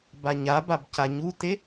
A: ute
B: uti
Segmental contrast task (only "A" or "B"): A